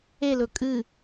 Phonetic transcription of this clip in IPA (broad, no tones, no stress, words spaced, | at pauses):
elɵ kʼɨ